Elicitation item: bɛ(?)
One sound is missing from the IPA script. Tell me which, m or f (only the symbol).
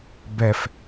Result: f